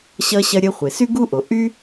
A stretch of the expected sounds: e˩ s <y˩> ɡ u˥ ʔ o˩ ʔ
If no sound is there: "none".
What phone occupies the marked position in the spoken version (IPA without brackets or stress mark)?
y˥